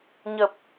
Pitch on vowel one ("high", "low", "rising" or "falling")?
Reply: low